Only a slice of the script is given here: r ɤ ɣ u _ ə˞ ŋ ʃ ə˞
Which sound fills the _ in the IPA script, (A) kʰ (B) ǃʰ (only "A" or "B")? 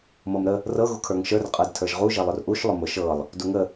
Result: A